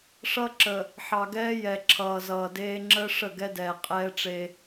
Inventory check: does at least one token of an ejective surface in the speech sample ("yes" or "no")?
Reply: yes